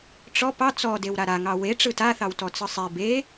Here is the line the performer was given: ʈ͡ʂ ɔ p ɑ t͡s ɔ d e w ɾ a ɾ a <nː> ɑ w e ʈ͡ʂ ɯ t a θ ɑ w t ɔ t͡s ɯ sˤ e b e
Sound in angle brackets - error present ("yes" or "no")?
yes